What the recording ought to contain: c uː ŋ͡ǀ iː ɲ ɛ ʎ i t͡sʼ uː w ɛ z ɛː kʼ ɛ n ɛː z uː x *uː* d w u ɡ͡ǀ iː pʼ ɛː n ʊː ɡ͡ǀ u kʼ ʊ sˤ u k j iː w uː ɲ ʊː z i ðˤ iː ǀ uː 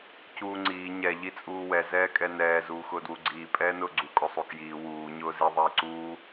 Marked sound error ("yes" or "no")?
yes